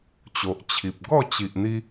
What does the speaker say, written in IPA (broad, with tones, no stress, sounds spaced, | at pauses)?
t͡ɕ o˨ ʔ t͡ɕʰ i˨ p̚ ɡ ɔ˥˧ t͡ɕ i˨ ʔ n̪ i˧